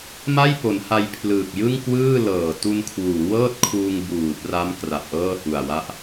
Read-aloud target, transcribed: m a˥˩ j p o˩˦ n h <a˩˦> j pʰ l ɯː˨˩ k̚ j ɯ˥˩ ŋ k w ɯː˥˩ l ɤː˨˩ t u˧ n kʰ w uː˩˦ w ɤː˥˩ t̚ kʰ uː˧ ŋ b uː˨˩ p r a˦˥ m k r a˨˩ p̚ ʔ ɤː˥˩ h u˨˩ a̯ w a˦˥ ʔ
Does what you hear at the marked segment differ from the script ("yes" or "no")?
yes